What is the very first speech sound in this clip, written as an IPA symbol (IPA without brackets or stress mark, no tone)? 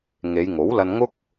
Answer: ŋ